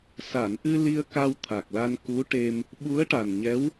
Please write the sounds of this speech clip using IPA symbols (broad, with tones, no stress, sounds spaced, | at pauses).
s a˨˩˨ n ʔ ɨ˧ l i˧ ə̯ k a˧ w t̪ʰ a˨˩ k̚ l a˧ n k u˧˥ ʈ e˧ m | ɓ u˧˥ ə̯ ʈ a˨˩ n ɲ ɛ˧˥ w